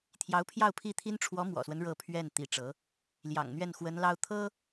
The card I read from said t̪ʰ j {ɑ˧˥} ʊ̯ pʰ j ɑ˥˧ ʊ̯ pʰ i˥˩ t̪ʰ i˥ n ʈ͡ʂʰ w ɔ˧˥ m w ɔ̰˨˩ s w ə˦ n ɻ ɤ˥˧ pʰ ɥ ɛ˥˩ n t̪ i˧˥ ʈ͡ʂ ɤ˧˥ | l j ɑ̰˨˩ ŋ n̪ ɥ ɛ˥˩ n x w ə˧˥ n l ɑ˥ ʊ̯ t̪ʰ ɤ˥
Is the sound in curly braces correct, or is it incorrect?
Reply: correct